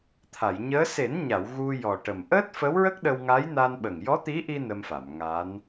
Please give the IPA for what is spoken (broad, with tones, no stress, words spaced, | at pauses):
t̪ʰa˨˩˨jɲəː˧˥ se˨˩˦nɲa˨˩˨w ɣu˧ jɔ˨˩ʈə˨˩m ʔəː˦˥t̚fə˧˥wɹə˦˥k̚ɗə˧w ŋa˧˥jna˧nɓə˨˩ŋ jɔ˧˥t̪i˧˥ʔi˧ nə˧mfa˨˩˨m ŋa˧˥n